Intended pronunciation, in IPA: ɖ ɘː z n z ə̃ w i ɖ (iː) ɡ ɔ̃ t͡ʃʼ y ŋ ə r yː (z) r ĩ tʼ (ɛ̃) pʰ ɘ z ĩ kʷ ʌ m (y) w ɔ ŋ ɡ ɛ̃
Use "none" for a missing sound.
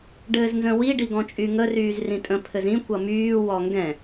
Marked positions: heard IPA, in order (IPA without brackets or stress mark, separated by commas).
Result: i, z, ə̃, yː